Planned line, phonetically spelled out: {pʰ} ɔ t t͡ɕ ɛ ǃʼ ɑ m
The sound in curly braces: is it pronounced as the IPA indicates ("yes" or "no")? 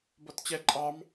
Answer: no